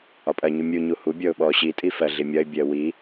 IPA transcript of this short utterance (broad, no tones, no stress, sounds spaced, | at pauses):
ɒ pʼ ɜ ɲ u mʲ u ɲ u h u bʲ ɔ ʊ̯ ɓ ɔ ɕ i tʼ i f ɜ ɮ i mʲ ɒ ɪ̯ bʲ ɜ w i